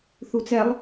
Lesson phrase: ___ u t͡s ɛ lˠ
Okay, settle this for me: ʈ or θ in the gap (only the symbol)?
θ